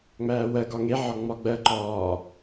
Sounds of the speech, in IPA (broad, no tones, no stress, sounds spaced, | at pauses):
ŋ͡m æː w ɜ ɡ ɒ ŋ e ʕ ɒ ŋ͡m ɒ ɡ͡b ɜ ǃ ɒː